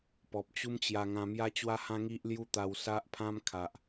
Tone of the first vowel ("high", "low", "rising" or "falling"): low